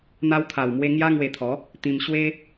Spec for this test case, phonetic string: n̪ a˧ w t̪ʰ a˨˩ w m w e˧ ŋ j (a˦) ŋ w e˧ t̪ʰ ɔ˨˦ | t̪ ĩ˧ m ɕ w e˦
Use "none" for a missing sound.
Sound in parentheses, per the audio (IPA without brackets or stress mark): a˦